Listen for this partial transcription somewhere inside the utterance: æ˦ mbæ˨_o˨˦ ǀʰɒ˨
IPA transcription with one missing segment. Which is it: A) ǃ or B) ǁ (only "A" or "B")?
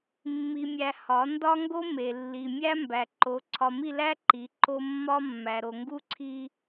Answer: A